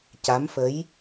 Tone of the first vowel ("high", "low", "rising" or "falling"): rising